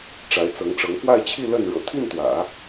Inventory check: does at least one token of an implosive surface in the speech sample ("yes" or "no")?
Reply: no